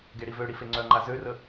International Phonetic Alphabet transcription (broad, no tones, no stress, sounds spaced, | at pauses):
ɡ e ɽ i v ø ɽ i f e ŋ͡ǀ œ ŋ͡ǃ a z ø r ə